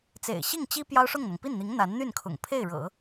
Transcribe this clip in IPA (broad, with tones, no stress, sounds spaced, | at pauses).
t͡s ḛ˨˩ ɪ̯ ɕ i˥˩ ŋ t͡ɕ i˥ p j ɑ˥ ʊ̯ ʂ ʊ˥˩ ŋ n̪ ɤ˩ ŋ p i˥˩ n n̪ i˧˥ ŋ n̪ a˧˥ n n̪ y˥˩ n kʰ ʊ̰˨˩ ŋ pʰ e˥˩ ɪ̯ ɻ ɤ̰˨˩˦